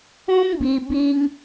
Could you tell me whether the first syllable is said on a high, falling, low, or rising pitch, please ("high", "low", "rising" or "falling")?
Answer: high